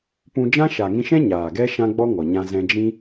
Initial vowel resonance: nasal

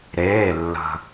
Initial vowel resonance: oral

